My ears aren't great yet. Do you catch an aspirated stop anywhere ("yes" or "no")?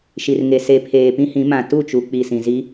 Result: yes